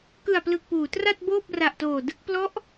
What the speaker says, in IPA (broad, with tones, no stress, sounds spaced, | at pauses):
k ɯ˨˩ a̯ p l ɯ˨˩ k̚ p uː˩˦ t r a˥˩ t̚ b oː˥˩ p̚ r a˨˩ ʔ t oː˨˩ d ɯ˥˩ k̚ p l ɔ˦˥ ʔ